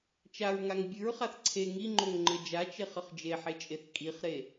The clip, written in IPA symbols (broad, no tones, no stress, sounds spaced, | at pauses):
t͡ʃ a ɹ ŋ a ŋ bʲ ɨ ɹ χ a θ ǀʰ e ŋ i ŋ͡ǃ o ŋ ŋ͡ǃ ɘ d͡ʒ a t͡ʃ e χ ɘ χ d͡ʒ e ħ e t͡ʃʼ e θ kʼ i χ ɾ e